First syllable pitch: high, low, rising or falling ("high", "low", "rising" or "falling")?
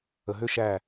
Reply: low